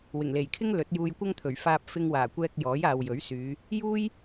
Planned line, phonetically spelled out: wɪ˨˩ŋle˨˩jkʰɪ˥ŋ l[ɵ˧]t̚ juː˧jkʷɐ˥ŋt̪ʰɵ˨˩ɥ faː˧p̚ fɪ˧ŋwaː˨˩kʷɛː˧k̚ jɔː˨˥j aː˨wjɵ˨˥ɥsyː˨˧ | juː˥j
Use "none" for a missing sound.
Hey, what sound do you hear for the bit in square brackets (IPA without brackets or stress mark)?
ɵ˨˥